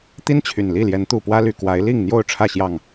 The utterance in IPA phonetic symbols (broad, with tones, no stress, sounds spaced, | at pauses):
t̪ i˦ n t͡ɕʰ y˨˩ n l i˥˨ l j ɛ˨˦ n t̪ u˨˩ p w ä˦ l y˨˩ k w a˨˦ ɪ̯ l i˥˨ ŋ n̪ j o˥˨ ʊ̯ ʈ͡ʂʰ ä˥˨ ɕ j ɑ˥˨ ŋ